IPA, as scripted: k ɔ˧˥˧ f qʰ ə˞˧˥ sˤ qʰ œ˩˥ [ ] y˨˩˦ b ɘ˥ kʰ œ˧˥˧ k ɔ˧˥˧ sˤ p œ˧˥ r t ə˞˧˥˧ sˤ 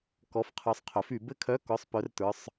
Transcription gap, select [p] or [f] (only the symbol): f